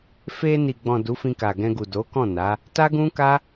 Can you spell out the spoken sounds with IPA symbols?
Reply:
f e˧ n i˨ ɡ͡b ɔ̃˨ d u˨˦ f ĩ˧ k a˨ ɡ ɛ̃˧ ɡ u˨ d o˨˦ k ɔ̃˦˨ n a˨˦ | t a˦ ɡ ũ˦ k a˦

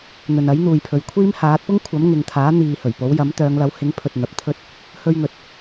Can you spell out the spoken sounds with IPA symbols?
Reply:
n̪ ɵ˨ n ɐ˨˥ j n̪ uː˨ j pʰ ɵ˨˧ ɥ kʷʰ iː˥ m h aː˨˥ t̚ p ʊ˥ ŋ kʷʰ ɐ˨˥ m ŋ ɪ˨ ŋ t̪ʰ aː˨˥ n̪ iː˨ h ɵ˨˩ ɥ p o˨˥ w j ɐ˨˥ m t̪ œː˨˧ ŋ l ɐ˨˥ w h ɪ˨˥ ŋ pʰ ɵ˨ t̚ n̪ ɐ˨ p̚ t̪ʰ ɵ˥ t̚ | h ɵ˧ ɥ ŋ ɵ˨ t̚

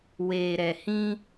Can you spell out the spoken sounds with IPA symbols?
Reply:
w eː˨ ɾ ɛ˨ h ĩ˦

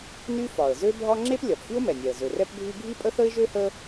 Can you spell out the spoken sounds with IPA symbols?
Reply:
n y˥ f ɒ˩ ə̯ z ø˥ bʱ ɒ˥ ŋ͡ǁ e˥ p lʲ ɒ˩ p f y˥ ʊ̯ m ɛ˩ nʲ ɛ˩ ə̯ z ø˩ r ɛ˥ p bʱ y˥ ɡʱ i˥ pʼ ə˥ θ ə˥ ɪ̯ ʒ ø˥ h ə˥

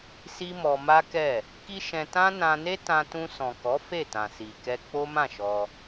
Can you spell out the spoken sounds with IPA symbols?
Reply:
s i˦ m ɔ˧ m a˦ k ɛ˦˨ | k i˦ ʃ ɛ̃˧ t ã˦ n ã˧ n e˦ t ã˧ t ũ˧ s ɔ̃˨ k ɔ˨˦ f e˦˨ t ã˨ s i˨ k ɛ˧ k͡p o˦ m ã˦˨ ʃ ɔ˧

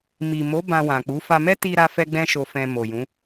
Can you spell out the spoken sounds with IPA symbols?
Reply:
m i˨ m o˨˦ b ã˧ w ã˨ k͡p u˨˦ f a˧ m ɛ˦ t i˧ ɾ a˦ f ɛ˦ ɡ͡b ɛ̃˦ ʃ o˧ f ɛ̃˧ m o˨ j ũ˨˦

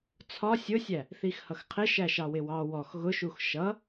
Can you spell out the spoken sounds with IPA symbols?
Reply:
t͡sʰ ɒ sʲ ʊ sʲ æ | θ i x h ʌ x qʰ ɪ ʃ æ ʃ ɑ w ɪ w ɑ w ɔ x ɣ ʊ ʃ u x ʃ ʌ

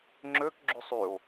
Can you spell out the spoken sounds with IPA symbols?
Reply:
ŋ͡ǁ ø k ɡ͡ǁ y sˤ y o̯

